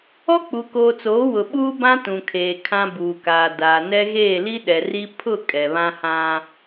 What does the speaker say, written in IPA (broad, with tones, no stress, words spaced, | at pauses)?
ɔ˦k͡pu˨koː˨t͡soː˨˦ wʊ˨ɓuː˦bã˦ tũ˨kʰeː˨ kʰã˦ buː˨kaː˨ daː˨nɛ˦ ɣeː˦˨li˦ ɗɛ˨ri˦ pʰʊ˦˨ kʼɛ˨βã˦hã˦